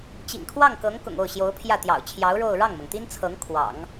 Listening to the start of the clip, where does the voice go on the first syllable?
low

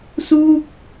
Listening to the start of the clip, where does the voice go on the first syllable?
falling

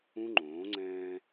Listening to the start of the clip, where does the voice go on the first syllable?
high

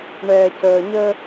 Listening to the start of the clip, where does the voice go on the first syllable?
low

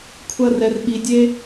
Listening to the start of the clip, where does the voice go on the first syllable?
high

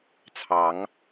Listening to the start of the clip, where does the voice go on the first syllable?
rising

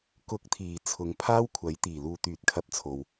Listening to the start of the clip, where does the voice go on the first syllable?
rising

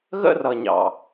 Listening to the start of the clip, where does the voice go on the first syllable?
high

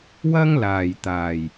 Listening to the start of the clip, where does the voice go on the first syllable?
high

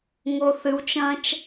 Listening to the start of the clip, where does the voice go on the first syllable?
low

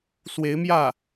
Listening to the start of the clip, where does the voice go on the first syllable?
rising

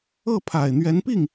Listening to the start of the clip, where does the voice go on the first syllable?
falling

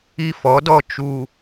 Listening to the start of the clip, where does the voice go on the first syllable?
high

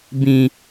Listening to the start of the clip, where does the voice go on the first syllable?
low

